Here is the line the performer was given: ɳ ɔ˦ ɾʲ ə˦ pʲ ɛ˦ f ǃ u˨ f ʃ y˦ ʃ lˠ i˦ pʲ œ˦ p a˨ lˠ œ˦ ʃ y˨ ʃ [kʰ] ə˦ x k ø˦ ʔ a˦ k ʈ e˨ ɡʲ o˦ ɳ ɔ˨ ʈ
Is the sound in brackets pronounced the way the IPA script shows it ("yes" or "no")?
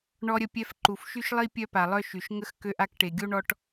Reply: no